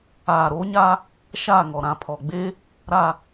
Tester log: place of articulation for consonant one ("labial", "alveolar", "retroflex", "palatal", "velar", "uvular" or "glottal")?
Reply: alveolar